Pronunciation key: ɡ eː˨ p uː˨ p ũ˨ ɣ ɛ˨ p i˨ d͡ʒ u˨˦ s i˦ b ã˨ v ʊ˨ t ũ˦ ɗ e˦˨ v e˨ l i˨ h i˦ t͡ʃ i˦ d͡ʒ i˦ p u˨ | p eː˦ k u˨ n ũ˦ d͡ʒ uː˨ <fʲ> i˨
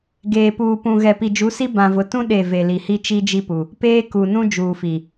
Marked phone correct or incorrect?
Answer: incorrect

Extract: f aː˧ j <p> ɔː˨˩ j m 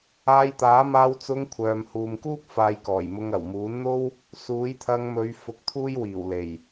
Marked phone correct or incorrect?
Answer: incorrect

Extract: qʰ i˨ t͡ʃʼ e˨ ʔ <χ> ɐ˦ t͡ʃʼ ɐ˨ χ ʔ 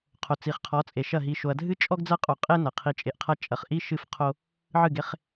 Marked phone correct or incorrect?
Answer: incorrect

